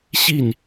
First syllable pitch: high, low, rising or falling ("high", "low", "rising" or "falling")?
falling